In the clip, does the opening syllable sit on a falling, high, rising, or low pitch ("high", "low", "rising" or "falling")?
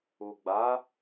low